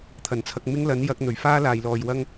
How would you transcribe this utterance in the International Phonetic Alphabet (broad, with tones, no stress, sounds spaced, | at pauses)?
t̪ʰ ɐ˨˩ n t͡sʰ ɐ˧ k̚ m ɪ˥ ŋ l ɐ˨˥ n j ɐ˨˥ k̚ n̪ ɵ˨˩ ɥ f aː˥ l aː˨ j l ɔː˨ j w ɐ˥ ŋ